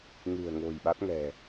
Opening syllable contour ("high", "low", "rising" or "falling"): low